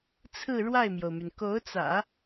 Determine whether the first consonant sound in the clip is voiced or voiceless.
voiceless